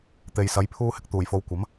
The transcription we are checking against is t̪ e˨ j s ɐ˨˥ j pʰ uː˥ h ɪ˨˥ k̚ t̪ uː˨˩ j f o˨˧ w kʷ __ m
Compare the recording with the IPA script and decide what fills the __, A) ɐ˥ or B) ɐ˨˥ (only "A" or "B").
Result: B